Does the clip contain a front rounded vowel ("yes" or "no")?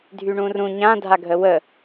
yes